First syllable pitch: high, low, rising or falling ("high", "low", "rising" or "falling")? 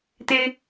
high